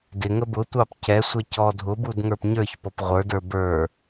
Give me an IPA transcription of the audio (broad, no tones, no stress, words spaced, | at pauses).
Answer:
dɪŋə bʊtʷɑp cɛsʷɛ cɔ dʱʊbud ŋə˞pɲə˞çpɔp ʁʷə˞də˞ bə˞